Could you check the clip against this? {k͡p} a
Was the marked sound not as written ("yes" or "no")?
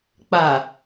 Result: no